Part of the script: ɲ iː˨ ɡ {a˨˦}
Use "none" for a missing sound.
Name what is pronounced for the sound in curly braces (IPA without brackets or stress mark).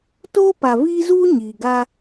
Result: a˦